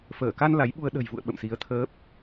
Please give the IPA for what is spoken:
f əː˧˩ k a˧ n l a˨˦ j ɓ u˧ ə̯ ɗ ə̤˨˩ j v ṵ˧˨ ə̯ ɓ ə̰˧˨ m s i˨˦ ə̯ t̪ʰ əː˦˥ p̚

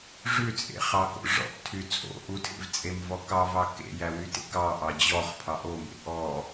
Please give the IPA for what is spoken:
ʐ ʉ t͡sʼ ḛ χ ɑ k o̰ ʐ ɔ̰ ʔ tʰ y t͡sʼ o̰ ʔ u tʰ ḛ v t͡sʼ e m v ɔ k ɑ v ɑ k ḛ j æ w y t ḛ k ɑ ʔ ɑ d͡ʑ ɔ χ pʰ ɑ ʔ o m ḛ ʔ ɔ

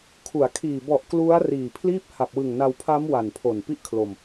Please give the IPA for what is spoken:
kʰ u˩˦ a̯ kʰ iː˨˩ b ɔ˨˩ ʔ k l u˦˥ a̯ r iː˨˩ pʰ l iː˥˩ p̚ h a˨˩ p̚ w ɯ˨˩ ŋ n a˧ w pʰ a˦˥ m w a˨˩ n pʰ o˨˩ n p i˥˩ ʔ kʰ l o˧ m

